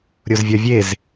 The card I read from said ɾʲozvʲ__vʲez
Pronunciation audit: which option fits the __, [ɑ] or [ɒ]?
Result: ɒ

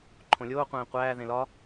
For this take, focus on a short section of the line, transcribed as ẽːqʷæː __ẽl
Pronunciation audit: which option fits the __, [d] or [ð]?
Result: ð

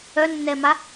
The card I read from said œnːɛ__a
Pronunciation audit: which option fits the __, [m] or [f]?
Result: m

